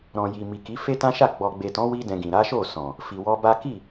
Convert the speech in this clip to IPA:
ɾ ɔ̃˨ j i˨ m i˨ k i˨˦ f e˦ t ã˦ ʃ a˦˨ ɡ͡b ɔ˨ ɡ͡b e˨ t ɔ̃˨˦ w i˦ d ɛ̃˧ ɡ ĩ˨ ɾ a˨˦ ʃ o˦˨ s ɔ̃˨ | f i˨ w ɔ˧ b a˦ k i˦˨

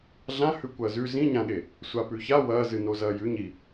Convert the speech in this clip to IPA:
ɮ ã h ʉ kʷ ɐː z ʉ z ĩ ɲ ã ɠ e | sʷ a p ʉ ç a w ɐː z ɨ n o z ɐː j ʉ ɲ i

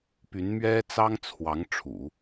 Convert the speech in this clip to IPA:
p y˧˥ n m ɥ ɛ˥ t͡s ɑ˥ ŋ t͡sʰ w ɑ˧˥ ŋ ʈ͡ʂʰ ṵ˨˩˦

